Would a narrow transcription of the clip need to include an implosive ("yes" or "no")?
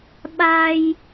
yes